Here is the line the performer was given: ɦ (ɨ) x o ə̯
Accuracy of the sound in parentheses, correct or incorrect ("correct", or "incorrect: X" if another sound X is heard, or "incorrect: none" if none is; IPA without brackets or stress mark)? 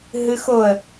correct